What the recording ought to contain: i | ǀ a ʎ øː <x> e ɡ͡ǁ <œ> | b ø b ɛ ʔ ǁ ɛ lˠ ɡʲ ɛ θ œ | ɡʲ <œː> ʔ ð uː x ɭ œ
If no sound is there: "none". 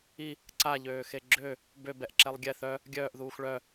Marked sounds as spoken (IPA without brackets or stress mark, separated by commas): x, ø, œː